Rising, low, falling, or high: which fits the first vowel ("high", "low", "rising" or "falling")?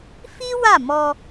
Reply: high